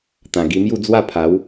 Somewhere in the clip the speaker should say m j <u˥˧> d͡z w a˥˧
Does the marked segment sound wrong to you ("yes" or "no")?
no